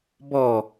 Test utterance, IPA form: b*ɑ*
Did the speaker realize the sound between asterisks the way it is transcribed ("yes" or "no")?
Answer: no